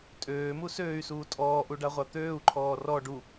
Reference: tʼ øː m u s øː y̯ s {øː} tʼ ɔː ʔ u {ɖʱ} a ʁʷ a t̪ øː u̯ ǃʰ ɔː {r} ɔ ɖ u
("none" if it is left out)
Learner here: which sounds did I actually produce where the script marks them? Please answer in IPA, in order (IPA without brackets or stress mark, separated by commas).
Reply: uː, ɖ, r